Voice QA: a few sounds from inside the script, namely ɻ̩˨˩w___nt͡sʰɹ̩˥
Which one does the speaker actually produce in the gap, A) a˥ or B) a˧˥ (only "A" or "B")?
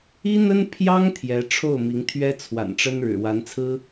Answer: B